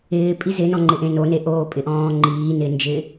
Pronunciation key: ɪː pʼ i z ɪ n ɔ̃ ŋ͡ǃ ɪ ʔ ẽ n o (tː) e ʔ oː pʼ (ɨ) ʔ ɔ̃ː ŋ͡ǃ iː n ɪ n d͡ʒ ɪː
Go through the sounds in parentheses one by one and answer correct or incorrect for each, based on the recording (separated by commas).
incorrect, incorrect